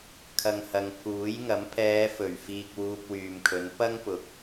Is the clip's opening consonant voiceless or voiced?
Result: voiceless